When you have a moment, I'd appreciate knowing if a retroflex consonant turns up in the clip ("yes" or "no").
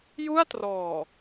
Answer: no